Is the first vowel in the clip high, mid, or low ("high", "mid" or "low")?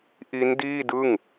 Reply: high